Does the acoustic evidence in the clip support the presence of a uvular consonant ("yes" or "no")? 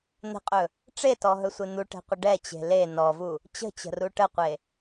yes